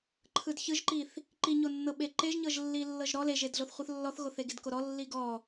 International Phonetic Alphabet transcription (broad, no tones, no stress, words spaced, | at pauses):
ǃʰɯdçɯʒǃiθ | ǃiɲonːɤ ɓeǃeʒɲɤʒ lːilːɤʒɾɔ leʒedɮoθ χʷɯθlːɔθɣoθe ɡedkoɾɔ lːiɡɔ